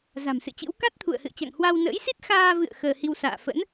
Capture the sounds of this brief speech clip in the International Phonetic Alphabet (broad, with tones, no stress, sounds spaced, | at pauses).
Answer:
z a̤˨˩ m s ɨ̰˧˨ t͡ɕ ɨ̰˧˥ w k a˦˥ t̚ t̪ʰ ṵ˧˨ ə̯ h ɨ̰˧˨ ə̯ t͡ɕ a̰˧˨ ŋ h w a˧ w n ə̰ː˧˥ j s i˦˥ t̚ x aː˧ v ɨ̰˧˨ ə̯ x əː˧ h i˧ w s a̰ː˧˨ f ə̰˧˥ n